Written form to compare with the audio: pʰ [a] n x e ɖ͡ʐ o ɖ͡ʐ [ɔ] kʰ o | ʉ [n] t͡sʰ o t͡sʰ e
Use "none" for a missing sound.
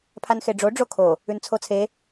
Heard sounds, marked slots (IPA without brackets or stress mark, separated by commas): a, o, n